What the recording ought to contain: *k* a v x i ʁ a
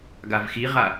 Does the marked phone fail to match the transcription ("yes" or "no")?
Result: yes